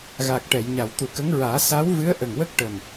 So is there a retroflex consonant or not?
yes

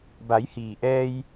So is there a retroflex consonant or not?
no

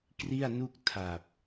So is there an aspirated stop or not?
yes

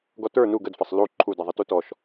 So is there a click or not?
yes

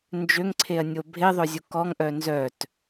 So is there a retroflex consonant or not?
no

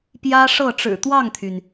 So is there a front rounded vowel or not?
yes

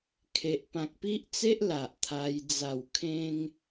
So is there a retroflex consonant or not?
no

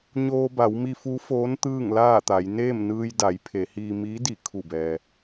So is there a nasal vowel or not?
no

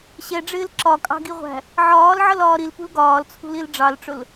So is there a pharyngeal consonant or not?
yes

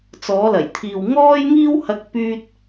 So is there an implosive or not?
no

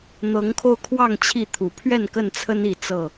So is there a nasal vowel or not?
no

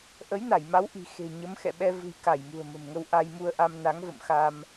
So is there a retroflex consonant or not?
no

